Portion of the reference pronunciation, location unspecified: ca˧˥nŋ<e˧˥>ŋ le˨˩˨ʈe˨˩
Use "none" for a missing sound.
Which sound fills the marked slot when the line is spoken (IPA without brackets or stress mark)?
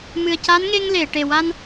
e˧